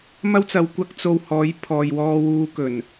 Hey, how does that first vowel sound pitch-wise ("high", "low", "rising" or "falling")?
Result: high